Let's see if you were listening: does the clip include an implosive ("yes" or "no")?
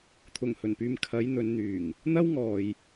no